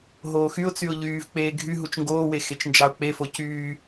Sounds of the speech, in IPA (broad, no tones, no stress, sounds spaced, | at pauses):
ɦ oː x y ʊ̯ t͡s y ʊ̯ ʎ yː v k͡p eː ɡʱ y ɦ u t͡ʃ ŋ ɡ oː w e x e t͡ʃ n d͡ʒ ɑ ʊ̯ k͡p e f o c yː